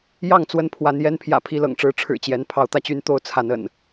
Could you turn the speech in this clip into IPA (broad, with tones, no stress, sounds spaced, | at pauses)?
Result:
j ɑ˥˨ ŋ t͡s w ə˥˨ n pʰ w a˨˦ n j ɛ˦ n pʰ j ä̰˨˩ pʰ i˥˨ l ɤ̰˨˩ ŋ ʈ͡ʂ ɻ̩˦ ʈ͡ʂʰ ɻ̩˨˩ t͡ɕ j ɛ˨˦ n pʰ ɑ˨˦ ʊ̯ t̪ ä˧ t͡ɕ y˦ n t̪ o˥˨ ʊ̯ t͡sʰ a˨˦ n ə̰˨˩ n